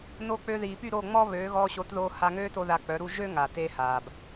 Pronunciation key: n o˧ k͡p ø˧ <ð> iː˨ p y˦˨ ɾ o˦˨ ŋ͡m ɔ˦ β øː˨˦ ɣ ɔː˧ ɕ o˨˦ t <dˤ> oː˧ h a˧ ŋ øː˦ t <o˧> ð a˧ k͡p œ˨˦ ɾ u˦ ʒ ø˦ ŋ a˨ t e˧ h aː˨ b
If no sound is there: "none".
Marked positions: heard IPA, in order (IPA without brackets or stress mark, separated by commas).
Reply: ð, ð, o˧